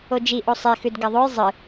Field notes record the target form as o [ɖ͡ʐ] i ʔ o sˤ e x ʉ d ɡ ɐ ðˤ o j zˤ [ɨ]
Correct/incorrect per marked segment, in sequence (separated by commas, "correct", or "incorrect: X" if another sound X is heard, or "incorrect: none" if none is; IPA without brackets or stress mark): incorrect: d͡ʒ, correct